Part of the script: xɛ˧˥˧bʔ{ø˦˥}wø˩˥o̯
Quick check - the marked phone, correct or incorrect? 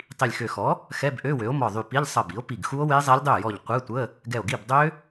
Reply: incorrect